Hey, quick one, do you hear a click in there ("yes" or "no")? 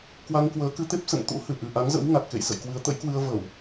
no